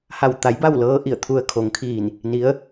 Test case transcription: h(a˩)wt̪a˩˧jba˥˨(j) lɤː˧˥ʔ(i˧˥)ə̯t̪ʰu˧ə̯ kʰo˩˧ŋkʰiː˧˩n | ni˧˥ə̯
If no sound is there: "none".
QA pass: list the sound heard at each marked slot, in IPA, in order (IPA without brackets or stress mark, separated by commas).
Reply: a˧˩, w, i˧˩